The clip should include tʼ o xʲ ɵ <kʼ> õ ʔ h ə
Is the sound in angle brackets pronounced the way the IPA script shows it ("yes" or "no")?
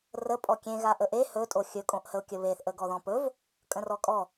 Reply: yes